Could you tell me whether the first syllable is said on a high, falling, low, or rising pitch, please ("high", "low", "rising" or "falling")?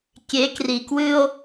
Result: rising